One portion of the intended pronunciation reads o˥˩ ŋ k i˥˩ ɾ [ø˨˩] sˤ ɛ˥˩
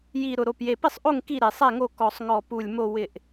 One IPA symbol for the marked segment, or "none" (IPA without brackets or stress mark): e˨˩